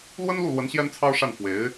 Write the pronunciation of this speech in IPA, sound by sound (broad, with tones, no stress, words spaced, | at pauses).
lwə˥nlu˥˩lwə˧˥n ɕjɛ˥nt͡sʰɑ˥ʊ̯ʂa˥˩n fwe˧˥ɪ̯